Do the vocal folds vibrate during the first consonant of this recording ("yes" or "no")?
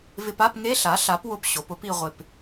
yes